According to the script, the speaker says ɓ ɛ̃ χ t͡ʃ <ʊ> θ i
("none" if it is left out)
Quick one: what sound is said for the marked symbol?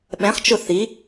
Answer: ʊ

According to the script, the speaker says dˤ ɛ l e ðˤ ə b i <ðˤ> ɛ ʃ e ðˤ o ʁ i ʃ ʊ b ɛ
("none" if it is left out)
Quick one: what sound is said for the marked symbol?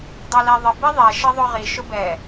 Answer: ðˤ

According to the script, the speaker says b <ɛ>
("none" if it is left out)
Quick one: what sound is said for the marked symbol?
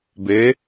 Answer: e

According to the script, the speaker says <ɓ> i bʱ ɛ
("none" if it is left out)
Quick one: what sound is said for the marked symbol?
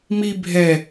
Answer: m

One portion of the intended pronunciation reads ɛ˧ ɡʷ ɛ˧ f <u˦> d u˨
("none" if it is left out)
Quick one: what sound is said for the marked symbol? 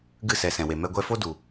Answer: o˦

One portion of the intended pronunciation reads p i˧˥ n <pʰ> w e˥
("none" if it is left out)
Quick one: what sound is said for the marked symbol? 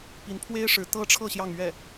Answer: pʰ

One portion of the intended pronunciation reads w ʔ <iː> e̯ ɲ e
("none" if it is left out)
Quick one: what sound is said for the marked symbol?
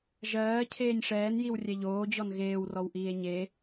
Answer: iː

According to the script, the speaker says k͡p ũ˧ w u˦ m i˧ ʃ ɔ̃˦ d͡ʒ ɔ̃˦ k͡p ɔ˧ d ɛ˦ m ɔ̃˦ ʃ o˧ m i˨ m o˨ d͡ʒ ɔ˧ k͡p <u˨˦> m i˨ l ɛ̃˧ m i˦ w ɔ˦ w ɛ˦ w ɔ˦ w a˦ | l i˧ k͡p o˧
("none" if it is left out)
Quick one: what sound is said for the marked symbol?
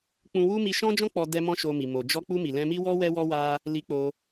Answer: u˧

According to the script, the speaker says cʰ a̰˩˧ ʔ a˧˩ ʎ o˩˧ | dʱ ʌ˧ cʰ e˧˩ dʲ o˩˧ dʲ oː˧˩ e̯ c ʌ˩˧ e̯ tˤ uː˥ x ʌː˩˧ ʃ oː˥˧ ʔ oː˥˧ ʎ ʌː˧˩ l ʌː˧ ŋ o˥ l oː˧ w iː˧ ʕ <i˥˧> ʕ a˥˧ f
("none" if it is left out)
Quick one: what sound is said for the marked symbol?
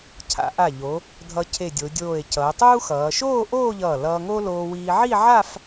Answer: i˥˧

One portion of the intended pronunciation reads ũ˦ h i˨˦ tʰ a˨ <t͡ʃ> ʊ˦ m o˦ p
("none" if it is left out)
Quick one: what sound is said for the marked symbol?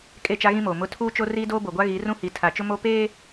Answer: t͡ʃ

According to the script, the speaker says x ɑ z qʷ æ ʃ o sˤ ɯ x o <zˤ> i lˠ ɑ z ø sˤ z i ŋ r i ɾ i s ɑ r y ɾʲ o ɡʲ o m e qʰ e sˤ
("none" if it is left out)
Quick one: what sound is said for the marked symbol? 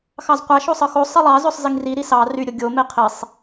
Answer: sˤ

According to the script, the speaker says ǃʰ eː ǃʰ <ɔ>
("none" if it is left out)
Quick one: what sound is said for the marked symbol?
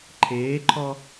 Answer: ɔ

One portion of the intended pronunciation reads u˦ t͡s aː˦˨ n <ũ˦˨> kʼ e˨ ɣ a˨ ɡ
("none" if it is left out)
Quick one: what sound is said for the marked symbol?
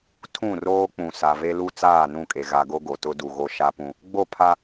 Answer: ũ˦˨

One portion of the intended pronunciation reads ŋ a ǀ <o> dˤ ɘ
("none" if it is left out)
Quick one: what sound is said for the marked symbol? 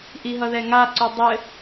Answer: o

